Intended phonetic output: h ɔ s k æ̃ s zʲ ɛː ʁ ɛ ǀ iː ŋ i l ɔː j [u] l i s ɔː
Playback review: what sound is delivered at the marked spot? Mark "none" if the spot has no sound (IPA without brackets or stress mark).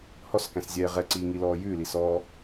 ʉ